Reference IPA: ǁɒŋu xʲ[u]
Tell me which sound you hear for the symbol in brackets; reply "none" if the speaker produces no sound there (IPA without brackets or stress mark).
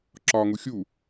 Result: u